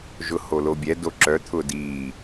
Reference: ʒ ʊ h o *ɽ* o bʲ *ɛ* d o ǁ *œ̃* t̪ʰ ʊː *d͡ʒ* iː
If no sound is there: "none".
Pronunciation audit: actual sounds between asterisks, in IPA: l, ɛ, œ, d

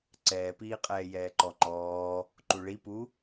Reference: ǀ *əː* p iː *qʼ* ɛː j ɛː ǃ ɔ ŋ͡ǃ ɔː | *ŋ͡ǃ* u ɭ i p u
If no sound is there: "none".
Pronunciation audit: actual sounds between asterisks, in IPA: ɛː, qʼ, ǃ

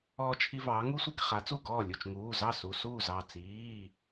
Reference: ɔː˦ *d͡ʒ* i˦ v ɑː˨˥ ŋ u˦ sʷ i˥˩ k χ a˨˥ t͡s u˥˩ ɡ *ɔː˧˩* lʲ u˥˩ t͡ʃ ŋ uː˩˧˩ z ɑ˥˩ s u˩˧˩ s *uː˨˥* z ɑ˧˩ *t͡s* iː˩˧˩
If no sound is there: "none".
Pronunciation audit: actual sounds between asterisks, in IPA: t͡ʃʰ, ɔː˥˩, uː˥˩, t͡s

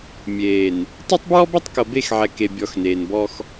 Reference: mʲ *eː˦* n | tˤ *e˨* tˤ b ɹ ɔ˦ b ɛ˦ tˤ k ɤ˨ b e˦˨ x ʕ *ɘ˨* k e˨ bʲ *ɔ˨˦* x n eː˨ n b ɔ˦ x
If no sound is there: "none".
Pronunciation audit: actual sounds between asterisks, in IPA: eː˨, e˦, ɛ˨, ɔ˨˦

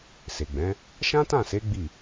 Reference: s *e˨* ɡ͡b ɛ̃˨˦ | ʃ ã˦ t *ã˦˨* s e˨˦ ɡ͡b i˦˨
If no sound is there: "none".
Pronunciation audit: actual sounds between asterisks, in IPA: e˨, ã˦˨

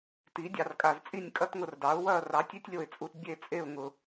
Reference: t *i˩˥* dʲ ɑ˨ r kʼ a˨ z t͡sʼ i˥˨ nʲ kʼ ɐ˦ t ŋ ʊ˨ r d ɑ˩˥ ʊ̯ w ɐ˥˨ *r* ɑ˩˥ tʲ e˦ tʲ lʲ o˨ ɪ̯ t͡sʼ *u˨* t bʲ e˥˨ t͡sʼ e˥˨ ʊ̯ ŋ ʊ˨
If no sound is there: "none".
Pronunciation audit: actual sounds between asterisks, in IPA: i˩˥, r, u˨

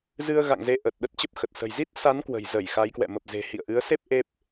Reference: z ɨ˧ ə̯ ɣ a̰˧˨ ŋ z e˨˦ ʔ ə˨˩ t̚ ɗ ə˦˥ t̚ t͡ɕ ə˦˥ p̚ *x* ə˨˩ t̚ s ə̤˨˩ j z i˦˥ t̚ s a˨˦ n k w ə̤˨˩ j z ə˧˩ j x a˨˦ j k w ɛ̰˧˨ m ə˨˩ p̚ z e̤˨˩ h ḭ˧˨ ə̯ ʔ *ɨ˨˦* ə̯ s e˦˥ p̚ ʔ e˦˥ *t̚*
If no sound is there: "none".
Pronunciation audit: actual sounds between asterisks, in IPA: x, ɨ˨˦, p̚

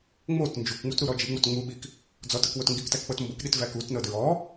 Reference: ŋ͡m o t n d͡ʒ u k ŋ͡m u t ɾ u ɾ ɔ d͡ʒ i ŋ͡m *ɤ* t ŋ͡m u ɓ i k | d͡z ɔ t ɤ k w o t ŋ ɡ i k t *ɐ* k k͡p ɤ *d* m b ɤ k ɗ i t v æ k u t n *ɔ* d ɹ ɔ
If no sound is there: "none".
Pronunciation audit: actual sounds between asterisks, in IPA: o, æ, t, ɤ

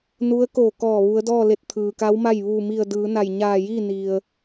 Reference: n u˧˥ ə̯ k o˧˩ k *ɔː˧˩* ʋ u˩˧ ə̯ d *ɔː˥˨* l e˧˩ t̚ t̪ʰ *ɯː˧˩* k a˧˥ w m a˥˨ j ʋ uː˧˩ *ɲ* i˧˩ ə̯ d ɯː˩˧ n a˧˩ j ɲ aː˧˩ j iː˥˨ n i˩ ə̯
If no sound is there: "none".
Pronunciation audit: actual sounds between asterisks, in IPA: ɔː˧˩, ɔː˥˨, ɯː˩, m

